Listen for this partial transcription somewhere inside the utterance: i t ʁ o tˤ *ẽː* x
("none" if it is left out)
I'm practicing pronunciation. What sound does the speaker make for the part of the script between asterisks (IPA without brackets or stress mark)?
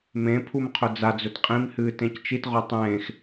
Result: ẽː